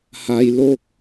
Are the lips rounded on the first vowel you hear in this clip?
no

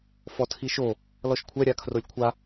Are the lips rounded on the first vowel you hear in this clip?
yes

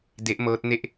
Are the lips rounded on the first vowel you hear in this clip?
no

